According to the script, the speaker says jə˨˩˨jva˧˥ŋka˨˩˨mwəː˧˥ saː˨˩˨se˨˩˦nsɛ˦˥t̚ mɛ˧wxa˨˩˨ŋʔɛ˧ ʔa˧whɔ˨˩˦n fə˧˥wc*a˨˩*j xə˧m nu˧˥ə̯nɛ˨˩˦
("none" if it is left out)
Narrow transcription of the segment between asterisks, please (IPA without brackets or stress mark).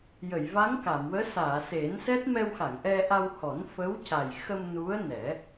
a˨˩